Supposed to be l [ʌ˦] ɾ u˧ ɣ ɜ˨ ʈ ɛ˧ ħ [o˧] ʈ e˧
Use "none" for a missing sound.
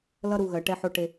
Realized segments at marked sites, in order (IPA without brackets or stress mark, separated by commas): ʌ˦, o˧